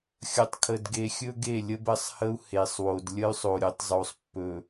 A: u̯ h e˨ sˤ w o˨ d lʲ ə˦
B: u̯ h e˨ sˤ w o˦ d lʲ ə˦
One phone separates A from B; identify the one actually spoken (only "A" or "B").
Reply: A